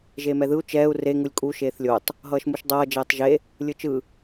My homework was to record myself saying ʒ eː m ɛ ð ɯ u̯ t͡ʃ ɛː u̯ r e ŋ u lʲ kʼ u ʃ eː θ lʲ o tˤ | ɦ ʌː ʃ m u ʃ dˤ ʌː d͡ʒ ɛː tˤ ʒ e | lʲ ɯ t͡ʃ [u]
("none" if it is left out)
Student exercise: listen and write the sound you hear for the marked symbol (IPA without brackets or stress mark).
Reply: ɯ